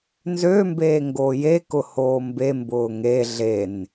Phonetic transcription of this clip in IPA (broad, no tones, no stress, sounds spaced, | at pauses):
n z ø m b eː ŋ ɡ oː j e k ʊ h oː m b e m b ʊː ŋ e ɮ e n